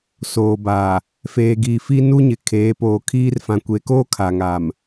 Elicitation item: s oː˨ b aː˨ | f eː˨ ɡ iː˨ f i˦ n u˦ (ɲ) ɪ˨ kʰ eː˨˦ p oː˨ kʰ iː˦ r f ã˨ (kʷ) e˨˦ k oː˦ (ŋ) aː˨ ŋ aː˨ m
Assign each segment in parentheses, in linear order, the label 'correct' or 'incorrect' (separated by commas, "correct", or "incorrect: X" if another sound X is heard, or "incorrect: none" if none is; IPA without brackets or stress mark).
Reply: correct, correct, incorrect: kʰ